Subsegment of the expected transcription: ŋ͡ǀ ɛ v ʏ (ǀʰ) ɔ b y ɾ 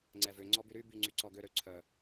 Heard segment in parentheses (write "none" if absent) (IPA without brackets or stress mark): ŋ͡ǀ